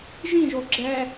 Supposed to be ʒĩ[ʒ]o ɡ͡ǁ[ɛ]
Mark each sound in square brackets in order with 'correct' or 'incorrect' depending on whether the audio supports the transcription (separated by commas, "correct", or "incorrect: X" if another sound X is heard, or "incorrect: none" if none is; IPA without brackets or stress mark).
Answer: correct, correct